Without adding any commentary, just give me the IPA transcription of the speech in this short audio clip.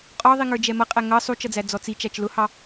qʼ ɔ ðˤ i ŋ ə˞ d͡ʒ ɛ m ʌ qʼ æ ŋ ʌ sˤ u t͡ʃ ʌ d͡z æ d͡z ɔ t͡s i t͡ʃ æ t͡ʃ l ʊ h ɑ

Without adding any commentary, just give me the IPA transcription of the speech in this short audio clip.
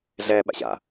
ɮ ɛː ɓ a̰ ɕ a̰

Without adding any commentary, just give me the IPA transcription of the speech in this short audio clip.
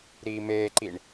ɾ iː m eː ǃ i ɳ

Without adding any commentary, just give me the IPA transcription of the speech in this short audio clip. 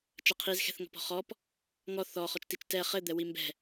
t͡ʃ ɐ qʰ i z x ɛ̤ θ ŋ ɔ̤ p ɔ̤ χ ɔ p | ŋ ɔ θ ɔ χ ɔ t͡ʃ t i t͡ʃ t ɛ χ ɘ d̪ ɛ w i m b ɛ̤

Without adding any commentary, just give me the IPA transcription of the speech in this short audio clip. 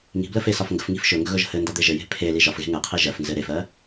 ŋ i̤ b l ə f e s ɒ f ŋ ɡ ə̤ f ŋ i̤ f ʃ ɵ ŋ ɡ ɵ ɣ ɵ ʒ ə̤ h ɘ n d ɒ d̪ e ʒ ɘ j e̤ pʰ e l i ʒ ɒ f ɣ e̤ ŋ ɘ qʰ i ʒ ɜ f n z ɘ ɾ e f ɜ

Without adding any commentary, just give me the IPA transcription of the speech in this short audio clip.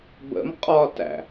b ə̰ m qʼ ɒ t æ̰

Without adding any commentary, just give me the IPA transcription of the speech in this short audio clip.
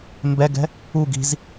m b ɛ ɡ ɛ̤ | u ɡ i̤ z

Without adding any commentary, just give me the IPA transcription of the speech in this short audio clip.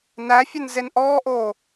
n æ fʲ ɵ n z e n ʔ ɔː ʔ oː

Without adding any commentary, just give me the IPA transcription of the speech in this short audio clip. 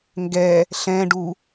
ŋ ɡ ɛ | ɬ ɛ̃ ɖ u

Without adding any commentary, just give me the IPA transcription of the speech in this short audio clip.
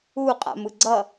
u qʼ a̰ m ɯ ɡ͡ǀ ʌ

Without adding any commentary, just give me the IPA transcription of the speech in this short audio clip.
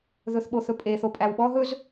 ð ɵ θ ɓ o θ ɵ pʼ e θ o pʼ æ w ɓ ɔ ɦ ɵ z

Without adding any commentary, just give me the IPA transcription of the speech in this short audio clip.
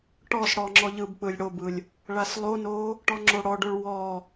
ʈ ɔ s ɽ ɔ ŋ͡ǁ ɔ ʎ ɯ b k͡p ɯ lʲ ɽ o b ɯ lʲ | ɭ a s lˠ o n o | ʈ ɔ ŋ͡ǁ o ɽ ɔ ɖ o ɭ w ɔ

